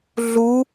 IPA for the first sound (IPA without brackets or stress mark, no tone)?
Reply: ɮ